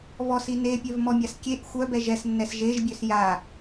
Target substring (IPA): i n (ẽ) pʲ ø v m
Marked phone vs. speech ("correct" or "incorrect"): incorrect